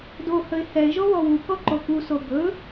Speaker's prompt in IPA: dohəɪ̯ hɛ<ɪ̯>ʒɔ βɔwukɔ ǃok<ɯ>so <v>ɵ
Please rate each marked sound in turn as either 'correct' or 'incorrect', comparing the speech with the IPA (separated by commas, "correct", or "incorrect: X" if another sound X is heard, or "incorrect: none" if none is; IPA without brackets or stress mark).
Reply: correct, incorrect: u, incorrect: b